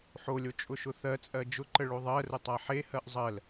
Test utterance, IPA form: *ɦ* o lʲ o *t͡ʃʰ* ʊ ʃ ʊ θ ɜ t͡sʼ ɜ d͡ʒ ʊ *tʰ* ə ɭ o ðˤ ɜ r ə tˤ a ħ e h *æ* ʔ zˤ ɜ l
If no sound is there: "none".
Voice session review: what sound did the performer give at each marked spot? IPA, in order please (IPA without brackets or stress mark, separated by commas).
ħ, t͡ʃʼ, ǃ, ɜ